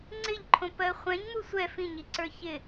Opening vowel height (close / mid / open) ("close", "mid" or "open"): close